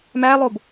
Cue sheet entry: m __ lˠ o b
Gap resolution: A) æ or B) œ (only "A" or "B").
A